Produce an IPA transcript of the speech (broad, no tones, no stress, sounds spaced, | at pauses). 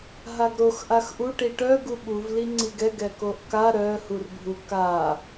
ɦ a ɡ ɾ o x ʔ a x ʔ u ʈ i ʈ œ ɡ u ɓ u v l i ŋ͡ǀ i ɡ ɛ ɡ ɛ k o ʔ k a ɾ œ h u r bʱ u k a